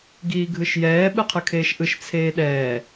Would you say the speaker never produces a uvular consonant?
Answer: no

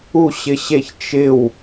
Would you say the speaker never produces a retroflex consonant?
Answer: yes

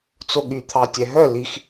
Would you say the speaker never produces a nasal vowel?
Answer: yes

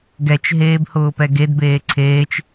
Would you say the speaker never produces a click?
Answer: no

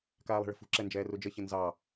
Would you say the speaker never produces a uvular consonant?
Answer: yes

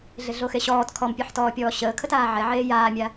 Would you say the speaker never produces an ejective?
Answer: yes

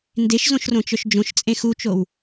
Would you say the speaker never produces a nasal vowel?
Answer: no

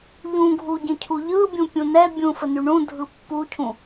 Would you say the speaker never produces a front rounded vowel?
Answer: no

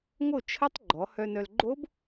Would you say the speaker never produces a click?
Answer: no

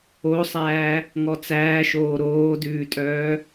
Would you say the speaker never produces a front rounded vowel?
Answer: no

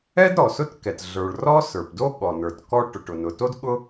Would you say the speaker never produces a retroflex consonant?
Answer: no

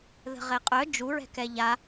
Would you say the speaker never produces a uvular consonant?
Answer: no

